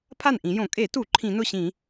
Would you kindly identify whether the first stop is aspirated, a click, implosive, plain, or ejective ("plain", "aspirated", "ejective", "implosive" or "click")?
aspirated